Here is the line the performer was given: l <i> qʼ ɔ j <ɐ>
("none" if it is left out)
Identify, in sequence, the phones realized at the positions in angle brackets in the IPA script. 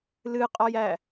ɨ, æ

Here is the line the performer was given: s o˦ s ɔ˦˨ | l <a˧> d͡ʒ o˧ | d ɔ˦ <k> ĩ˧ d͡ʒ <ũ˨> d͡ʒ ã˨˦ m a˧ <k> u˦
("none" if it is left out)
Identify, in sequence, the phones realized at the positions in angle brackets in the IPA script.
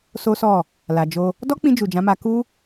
a˨, k͡p, u˨, k

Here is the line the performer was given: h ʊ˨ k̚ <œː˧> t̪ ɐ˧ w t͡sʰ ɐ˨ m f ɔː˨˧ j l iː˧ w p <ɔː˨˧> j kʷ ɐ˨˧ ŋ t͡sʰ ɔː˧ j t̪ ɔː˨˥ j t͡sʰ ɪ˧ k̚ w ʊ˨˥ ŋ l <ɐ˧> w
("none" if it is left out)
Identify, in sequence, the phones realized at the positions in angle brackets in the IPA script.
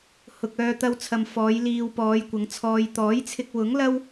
œː˧, ɔː˨˧, ɐ˥

